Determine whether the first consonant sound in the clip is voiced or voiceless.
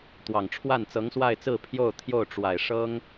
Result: voiceless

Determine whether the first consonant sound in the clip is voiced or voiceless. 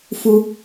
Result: voiceless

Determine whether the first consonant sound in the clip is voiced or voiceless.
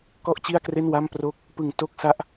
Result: voiceless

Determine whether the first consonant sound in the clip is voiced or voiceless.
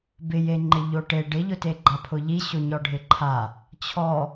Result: voiced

